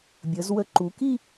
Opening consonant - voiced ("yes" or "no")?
yes